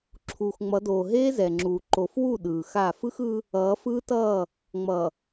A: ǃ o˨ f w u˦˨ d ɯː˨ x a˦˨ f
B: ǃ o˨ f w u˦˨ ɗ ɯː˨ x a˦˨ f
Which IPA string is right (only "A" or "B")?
B